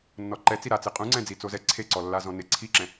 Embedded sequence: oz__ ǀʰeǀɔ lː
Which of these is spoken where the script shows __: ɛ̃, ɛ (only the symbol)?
ɛ